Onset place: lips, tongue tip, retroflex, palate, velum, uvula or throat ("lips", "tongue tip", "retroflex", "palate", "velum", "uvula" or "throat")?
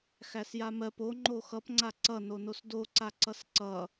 velum